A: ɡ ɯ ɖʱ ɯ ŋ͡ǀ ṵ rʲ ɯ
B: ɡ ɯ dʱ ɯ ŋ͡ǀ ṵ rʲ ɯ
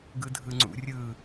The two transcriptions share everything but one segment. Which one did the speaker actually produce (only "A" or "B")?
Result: B